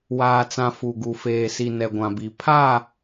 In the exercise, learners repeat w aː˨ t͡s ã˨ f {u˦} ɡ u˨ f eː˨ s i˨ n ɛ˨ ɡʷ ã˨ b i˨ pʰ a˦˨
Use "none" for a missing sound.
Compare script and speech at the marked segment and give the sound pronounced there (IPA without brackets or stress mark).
u˨